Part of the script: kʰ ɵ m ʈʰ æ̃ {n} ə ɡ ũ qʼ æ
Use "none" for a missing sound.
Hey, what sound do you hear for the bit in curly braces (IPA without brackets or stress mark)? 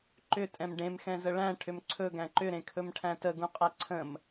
t